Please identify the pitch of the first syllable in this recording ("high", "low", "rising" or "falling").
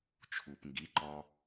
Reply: low